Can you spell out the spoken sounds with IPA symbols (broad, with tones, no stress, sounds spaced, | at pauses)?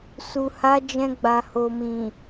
s u˨ h a˨˦ d͡ʒ ɛ̃˧ ɡ͡b a˨ h o˨ m ĩ˨